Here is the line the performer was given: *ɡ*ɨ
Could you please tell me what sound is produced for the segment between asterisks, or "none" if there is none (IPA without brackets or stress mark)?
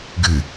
ɡ